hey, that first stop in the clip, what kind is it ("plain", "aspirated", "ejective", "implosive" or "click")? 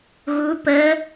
plain